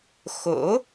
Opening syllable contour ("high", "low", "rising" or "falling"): rising